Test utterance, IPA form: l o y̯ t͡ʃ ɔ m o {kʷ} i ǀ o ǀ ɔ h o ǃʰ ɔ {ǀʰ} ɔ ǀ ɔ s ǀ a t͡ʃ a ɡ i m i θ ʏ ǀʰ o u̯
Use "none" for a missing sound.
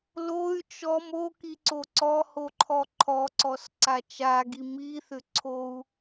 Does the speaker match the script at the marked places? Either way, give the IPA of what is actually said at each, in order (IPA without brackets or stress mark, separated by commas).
k, ǃʰ